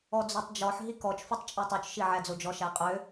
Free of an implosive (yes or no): yes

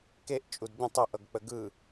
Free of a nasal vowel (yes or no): no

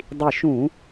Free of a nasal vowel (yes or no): no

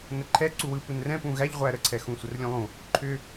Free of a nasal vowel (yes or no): no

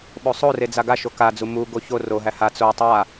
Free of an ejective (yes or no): yes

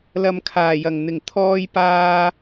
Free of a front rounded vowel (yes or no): yes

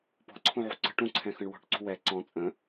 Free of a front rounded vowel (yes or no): yes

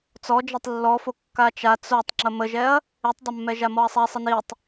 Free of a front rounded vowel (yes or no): yes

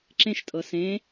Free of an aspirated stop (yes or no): yes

